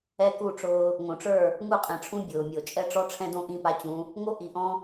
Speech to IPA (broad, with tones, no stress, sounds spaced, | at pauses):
ɛ˦ k u˦˨ ʈ͡ʂ ʊː˦ | ŋ õ˨ ʈ͡ʂ ə˞˦˨ | ŋ u˦˨ qʼ ɛ̃˨ ʈ͡ʂʰ ũ˦ bʲ ʊː˨ mʲ o˨ t͡ʃʼ ɛ˦ ʈ͡ʂ ɔ˦ ʈ͡ʂʰ ɛ̃˦ d õ˦ ʔ ĩ˦ p a˦ t͡ɕ ũ˨˦ | ŋ o˦ ʔ i˨ ʔ ɔ̃˦